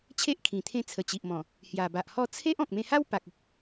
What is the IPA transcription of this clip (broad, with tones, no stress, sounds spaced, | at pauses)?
t͡ɕʰ e˦ ʔ kʰ ĩ˨˩ t̪ʰ ẽ˧ t͡sʰ ə˨˩ t͡ɕ i˨ ʔ m ɔ̃˨˩ | h j a˨˩ b a˨ ʔ h ɔ˥˧ t͡sʰ e˦ ʔ ɔ̃˨ k̚ m ẽ˧ h a˦ w p a˨ k̚ ə˦ k̚